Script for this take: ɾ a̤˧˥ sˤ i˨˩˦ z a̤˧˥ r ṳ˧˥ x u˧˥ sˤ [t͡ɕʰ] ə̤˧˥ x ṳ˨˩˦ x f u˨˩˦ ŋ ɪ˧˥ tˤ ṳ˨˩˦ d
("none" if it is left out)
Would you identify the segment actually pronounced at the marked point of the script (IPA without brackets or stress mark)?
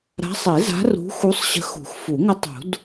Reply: ɕ